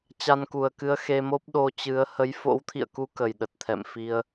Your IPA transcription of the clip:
t͡ɕa˧nku˨˩ə̯kɨ˧ə̯ xe˧mo˦˥p̚ ɗo˧t͡ɕɨ˨˦ə̯ hə˨˦jfo̰˧˥wt̪ʰḭ˧˨ə̯ku˨˦ kə˨˩jɗə˨˩t̚t̪ʰɛ̰˧˨m fi˧ə̯

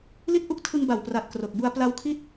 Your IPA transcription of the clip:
li˥˩t̚ʔu˥˩k̚ tʰɯ˧ŋba˨˩wpra˨˩t̚ kro˨˩k̚bu˧a̯ pla˦˥wkʰi˦˥t̚

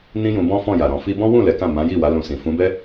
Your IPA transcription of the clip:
nĩ˦jũ˧ bɔ̃˦fɔ̃˦˨ja˨ɾɔ̃˨ fi˧bɔ̃˦ wũ˦˨ lɛ˨˦kã˦˨ mã˨˦ji˦˨wa˨˦ lũ˧sĩ˨ fũ˨˦bɛ˦

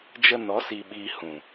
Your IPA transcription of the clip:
d͡ʒə˧nɔ˨˦ siː˧ɓiː˧ hũ˨

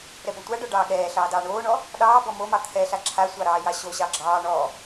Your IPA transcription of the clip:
ɾɛbɔtʷaɖɔ ɖɑːɠɛːɬɑː dɑːɳoːɳɔ | ɗɑː bɔmomɑ t̪ʰɛɬa ǁʰasʷɑ ɾɑːjɑɕoɕɑ ɡ͡ǁɑː ɳɔ

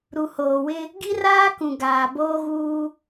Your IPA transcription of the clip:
ɾu˨hoː˨wɪ˦ | ɡi˦raː˦kũ˨ ɡaː˨boː˦ɣuː˦

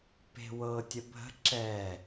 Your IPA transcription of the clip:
pe̤wɤ tʲəbʱə̤ ǁɛ

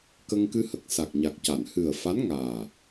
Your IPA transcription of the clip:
kə˧ŋkɨ˧hə˨˩k̚ sa˨˩k̚ɲa˨˩k̚ca˨˩˨n hɨ˨˩ə̯fa˧˥nŋaː˨˩

